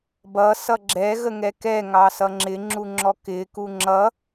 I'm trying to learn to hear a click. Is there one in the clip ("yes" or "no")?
yes